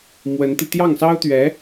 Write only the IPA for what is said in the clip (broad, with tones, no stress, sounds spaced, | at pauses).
m w ə˧˥ n t̪ i˧ t̪ j ɑ˥˩ ŋ s ɑ˥ ʊ̯ t̪ ɥ ɛ˧˥